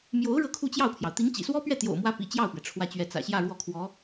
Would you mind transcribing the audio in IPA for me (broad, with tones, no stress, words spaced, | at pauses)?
mjo˧˥ʊ̯ ɻɤ˥˧kʰu˥˧t͡ɕjɑ˥˩ʊ̯pʰjɑ˩ʊ̯ t̪i˧˥ŋt͡ɕḭ˨˩swɔ˥pɥɛ˥˩ t̪jo̰˨˩ʊ̯mwä˧˥ pḭ˨˩t͡ɕjɑ˥˩ʊ̯pɥɛ˩ ʈ͡ʂʰwä˥˧t͡ɕɥɛ˥˩ t͡sä̰˨˩ɕjä˥˧ ɻwɔ˥˩kʰwɔ˧˥